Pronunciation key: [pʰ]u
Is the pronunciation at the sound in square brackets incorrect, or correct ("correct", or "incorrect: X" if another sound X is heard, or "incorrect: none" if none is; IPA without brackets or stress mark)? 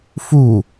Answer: incorrect: f